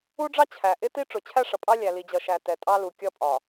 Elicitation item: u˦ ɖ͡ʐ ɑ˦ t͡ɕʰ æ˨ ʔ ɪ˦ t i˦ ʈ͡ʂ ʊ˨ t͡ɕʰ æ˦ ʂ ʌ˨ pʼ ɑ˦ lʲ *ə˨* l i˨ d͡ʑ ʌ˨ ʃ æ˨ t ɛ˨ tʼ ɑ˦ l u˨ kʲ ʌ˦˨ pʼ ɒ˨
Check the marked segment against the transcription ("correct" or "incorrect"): incorrect